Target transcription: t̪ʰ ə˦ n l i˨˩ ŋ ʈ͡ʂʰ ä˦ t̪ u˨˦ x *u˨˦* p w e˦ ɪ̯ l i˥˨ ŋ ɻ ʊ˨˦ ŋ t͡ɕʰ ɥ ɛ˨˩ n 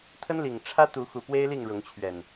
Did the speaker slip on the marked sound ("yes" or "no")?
yes